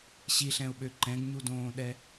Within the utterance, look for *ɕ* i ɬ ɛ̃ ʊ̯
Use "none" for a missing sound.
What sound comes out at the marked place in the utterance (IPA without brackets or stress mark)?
ɕ